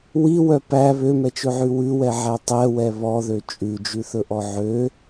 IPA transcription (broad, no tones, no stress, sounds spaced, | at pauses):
w i w œ p æ β ø m ɛ t͡ʃ ɵ ʕ ʉ w ʉ w ɛ ʕ æ tˤ ɛ w ɛ β ɔ ð ø t͡ʃʼ ʉ d͡ʒ ʉ θ ɵ ʔ ɔ ʕ ø